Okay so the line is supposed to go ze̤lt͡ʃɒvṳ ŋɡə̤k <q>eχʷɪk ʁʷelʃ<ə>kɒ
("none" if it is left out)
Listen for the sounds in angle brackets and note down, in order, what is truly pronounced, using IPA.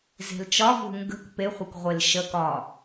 p, ə

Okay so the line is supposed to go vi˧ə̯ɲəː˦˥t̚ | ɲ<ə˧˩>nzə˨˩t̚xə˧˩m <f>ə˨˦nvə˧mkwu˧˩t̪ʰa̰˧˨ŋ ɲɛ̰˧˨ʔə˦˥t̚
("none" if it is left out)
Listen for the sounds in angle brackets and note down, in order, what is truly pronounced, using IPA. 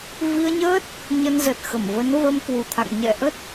ə˧, v

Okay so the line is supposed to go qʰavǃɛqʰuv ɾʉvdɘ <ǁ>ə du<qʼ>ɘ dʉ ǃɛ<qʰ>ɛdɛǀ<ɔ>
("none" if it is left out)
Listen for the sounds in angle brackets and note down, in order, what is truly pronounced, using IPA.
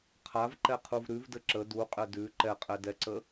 ǁ, qʼ, qʼ, ə

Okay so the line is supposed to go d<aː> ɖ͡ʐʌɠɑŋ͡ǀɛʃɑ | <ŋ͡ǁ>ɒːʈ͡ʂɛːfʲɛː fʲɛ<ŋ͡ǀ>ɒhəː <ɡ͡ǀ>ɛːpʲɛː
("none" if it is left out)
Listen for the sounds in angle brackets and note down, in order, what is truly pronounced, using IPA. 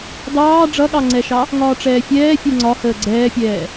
ɑː, ŋ, ŋ͡ǀ, ɡ͡ǀ

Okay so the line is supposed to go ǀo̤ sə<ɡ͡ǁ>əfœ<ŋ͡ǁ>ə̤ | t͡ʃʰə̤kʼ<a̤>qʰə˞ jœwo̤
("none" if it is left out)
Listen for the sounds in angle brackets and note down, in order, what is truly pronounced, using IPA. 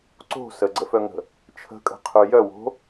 ɡ͡ǀ, ŋ, ə̤

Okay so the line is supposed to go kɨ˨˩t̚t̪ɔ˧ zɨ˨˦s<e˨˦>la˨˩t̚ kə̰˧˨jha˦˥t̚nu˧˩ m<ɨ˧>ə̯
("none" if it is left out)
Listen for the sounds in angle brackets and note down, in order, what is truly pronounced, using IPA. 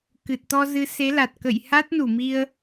e˨˦, i˧

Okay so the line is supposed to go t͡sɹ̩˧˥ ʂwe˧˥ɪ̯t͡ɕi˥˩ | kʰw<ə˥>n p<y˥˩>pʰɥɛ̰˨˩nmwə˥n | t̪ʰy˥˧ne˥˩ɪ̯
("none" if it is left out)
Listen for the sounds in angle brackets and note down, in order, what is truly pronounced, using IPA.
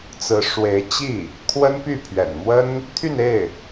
ə˥, y˥˩

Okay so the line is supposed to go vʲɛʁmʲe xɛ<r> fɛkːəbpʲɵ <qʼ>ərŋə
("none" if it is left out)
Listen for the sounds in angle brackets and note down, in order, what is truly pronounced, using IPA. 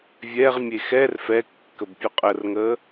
r, qʼ

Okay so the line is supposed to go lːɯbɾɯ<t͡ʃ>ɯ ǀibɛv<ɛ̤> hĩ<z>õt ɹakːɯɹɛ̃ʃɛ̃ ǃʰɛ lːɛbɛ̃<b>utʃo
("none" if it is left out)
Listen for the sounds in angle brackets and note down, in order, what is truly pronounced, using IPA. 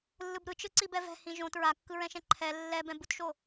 t͡ʃ, ɛ̤, ʒ, b

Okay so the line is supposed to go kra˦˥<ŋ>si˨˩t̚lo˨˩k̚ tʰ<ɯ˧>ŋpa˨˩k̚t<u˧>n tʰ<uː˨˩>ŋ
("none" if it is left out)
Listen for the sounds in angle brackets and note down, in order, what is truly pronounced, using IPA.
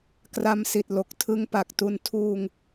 m, ɯ˦˥, u˧, uː˧

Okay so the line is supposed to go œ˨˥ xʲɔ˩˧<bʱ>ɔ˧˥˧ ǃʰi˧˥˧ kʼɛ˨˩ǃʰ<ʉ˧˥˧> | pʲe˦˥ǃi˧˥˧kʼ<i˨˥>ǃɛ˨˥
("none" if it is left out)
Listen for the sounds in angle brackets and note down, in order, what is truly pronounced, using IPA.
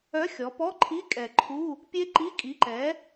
p, u˧˥˧, i˨˥

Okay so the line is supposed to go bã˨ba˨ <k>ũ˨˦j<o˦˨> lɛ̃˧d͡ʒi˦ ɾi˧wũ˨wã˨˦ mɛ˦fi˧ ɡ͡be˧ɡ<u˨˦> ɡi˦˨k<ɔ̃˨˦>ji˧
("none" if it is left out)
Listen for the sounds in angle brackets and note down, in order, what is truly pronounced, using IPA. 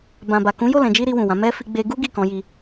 k, o˦˨, u˦, ɔ̃˨˦

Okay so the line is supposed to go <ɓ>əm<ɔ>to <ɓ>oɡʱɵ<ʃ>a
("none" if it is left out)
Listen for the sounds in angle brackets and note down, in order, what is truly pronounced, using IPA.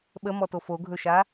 ɓ, ɔ, f, ʃ

